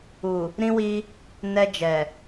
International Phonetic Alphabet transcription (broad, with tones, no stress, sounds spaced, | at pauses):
u˨ | ɾ ĩ˧ w i˧ | n ɛ˧ d͡ʒ ɛ˨